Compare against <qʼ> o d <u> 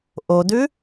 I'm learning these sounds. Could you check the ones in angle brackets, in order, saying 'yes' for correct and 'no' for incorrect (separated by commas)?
no, no